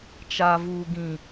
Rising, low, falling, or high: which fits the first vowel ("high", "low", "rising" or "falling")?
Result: low